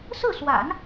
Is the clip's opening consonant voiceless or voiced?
voiceless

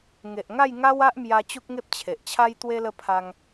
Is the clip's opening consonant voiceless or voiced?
voiced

